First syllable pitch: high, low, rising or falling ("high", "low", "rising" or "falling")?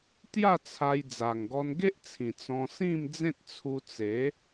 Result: falling